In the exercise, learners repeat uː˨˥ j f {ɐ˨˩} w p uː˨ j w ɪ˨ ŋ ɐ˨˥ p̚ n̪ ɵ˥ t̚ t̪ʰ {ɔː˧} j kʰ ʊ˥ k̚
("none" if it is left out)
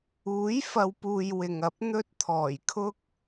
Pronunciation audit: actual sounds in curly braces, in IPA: ɐ˨˧, ɔː˨˩

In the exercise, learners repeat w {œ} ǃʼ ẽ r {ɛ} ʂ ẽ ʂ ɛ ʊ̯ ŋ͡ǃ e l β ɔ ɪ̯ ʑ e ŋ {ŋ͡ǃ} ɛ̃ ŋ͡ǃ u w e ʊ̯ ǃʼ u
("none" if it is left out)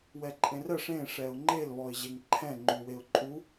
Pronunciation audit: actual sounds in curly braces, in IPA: ɛ, ɜ, ǃʰ

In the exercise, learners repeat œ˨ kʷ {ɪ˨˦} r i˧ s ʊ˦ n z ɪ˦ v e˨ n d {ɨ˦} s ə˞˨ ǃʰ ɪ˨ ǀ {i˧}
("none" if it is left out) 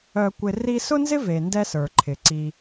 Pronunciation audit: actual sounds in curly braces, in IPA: ɪ˨, ɛ˦, i˧

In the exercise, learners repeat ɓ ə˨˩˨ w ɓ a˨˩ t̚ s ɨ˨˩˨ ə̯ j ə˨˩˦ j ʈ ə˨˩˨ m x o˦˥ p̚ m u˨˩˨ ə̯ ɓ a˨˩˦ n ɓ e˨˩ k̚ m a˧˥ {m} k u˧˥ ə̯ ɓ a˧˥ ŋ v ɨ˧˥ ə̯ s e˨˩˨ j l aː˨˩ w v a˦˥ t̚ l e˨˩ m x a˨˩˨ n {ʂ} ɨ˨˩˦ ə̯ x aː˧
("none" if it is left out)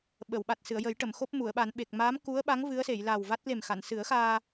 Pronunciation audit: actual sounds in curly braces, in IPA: m, s

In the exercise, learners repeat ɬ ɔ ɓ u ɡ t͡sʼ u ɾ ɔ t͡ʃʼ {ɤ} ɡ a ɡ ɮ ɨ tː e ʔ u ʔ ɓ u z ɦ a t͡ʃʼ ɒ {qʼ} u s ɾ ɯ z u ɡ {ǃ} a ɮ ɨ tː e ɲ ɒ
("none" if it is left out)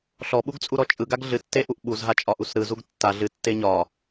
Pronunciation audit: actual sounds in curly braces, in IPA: ɯ, ʔ, tː

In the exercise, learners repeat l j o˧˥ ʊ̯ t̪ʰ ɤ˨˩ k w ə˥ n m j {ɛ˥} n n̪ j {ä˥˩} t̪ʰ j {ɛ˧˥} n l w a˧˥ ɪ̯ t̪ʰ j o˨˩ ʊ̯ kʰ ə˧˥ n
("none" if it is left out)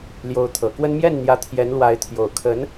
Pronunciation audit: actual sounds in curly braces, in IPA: ɛ˥˩, ä˧˥, ɛ˧˥

